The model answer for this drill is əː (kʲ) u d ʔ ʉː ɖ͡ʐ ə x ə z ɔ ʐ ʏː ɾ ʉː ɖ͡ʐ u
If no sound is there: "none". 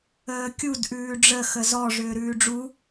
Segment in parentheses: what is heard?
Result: kʲ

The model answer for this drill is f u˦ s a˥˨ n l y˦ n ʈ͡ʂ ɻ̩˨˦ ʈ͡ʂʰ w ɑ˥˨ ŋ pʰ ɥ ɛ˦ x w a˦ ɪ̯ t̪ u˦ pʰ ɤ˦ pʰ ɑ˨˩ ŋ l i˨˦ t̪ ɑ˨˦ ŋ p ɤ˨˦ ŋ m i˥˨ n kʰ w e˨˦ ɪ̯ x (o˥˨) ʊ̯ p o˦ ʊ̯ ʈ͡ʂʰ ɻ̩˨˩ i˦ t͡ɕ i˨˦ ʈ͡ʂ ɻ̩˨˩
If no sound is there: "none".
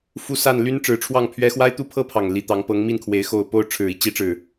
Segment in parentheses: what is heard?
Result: o˨˩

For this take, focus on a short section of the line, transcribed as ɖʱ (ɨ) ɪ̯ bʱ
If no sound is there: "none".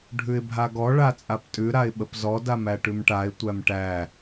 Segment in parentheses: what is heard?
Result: ʉ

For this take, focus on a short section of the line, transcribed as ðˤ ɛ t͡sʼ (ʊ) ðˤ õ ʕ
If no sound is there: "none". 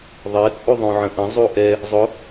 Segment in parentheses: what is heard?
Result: u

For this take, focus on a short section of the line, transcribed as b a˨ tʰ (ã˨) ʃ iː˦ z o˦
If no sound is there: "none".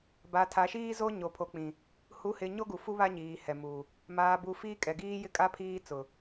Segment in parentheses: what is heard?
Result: a˨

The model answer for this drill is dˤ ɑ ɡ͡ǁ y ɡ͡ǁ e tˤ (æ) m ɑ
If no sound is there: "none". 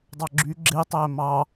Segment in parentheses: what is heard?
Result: æ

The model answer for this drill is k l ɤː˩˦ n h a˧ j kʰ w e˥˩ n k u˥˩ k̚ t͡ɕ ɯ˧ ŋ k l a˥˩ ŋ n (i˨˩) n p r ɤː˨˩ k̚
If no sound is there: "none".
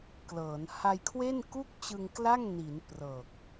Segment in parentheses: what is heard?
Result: i˩˦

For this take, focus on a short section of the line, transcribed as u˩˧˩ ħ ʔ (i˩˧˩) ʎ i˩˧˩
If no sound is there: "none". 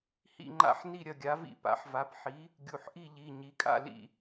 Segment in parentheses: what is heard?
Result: i˥˨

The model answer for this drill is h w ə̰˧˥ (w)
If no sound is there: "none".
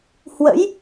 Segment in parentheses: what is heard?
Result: j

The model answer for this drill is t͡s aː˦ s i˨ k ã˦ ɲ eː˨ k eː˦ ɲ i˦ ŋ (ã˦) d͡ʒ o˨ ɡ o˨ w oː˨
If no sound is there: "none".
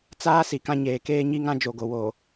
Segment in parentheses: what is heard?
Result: ã˦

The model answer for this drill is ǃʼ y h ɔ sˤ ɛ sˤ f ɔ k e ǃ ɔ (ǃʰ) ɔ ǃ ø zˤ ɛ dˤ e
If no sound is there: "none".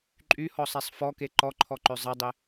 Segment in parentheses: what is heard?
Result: ǃʰ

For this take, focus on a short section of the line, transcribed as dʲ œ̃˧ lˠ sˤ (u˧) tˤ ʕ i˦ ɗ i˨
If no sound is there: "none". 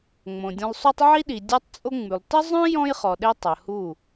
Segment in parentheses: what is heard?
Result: u˦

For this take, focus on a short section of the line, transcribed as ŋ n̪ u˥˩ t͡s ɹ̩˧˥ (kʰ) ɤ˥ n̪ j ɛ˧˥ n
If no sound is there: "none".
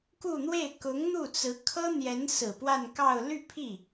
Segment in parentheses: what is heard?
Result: kʰ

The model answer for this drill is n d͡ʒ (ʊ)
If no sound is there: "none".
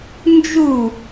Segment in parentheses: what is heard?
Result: u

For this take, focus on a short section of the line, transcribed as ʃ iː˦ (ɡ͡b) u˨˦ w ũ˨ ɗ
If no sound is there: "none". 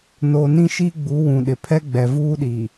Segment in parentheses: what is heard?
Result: ɡ͡b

